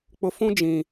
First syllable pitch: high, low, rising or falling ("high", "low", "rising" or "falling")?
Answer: low